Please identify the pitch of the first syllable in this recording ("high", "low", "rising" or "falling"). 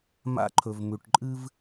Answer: high